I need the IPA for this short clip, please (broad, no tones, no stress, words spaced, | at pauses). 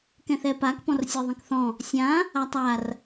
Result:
kɛ̃θɛpak pɔ̃rsʲə˞ðˤɛ̃kθɔ̃ | sʲã | atˤar